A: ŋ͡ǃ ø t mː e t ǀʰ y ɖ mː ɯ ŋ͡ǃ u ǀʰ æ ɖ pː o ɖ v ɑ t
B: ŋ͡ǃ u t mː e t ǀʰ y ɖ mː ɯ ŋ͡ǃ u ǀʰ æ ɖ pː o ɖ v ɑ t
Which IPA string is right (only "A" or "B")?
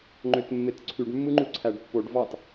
A